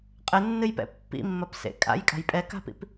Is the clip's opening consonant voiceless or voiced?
voiceless